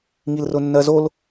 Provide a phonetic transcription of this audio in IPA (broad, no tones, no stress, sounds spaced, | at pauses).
ŋ i l r ʊ nː ɜ z o l